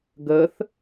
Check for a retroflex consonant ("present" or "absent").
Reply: absent